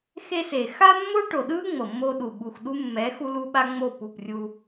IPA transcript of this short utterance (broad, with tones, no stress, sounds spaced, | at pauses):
x e˦ s e˨ x a˦ mː o˦ ʈ o˨ ɗ ɯ˦ ŋ͡m ɤ˨ mː o˦ ɗ u˨ ɓ u˨ x ɗ u˦ mː ɛ˨˦ x u˦ l u˦ ɓ a˦ ŋ͡m o˦˨ p u˦˨ p rʲ u˦